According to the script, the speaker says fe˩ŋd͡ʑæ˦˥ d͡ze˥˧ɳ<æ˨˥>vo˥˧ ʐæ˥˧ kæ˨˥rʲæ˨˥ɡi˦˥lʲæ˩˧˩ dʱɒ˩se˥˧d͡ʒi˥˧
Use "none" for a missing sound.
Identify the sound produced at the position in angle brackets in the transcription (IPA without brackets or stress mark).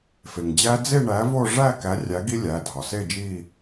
æ˨˥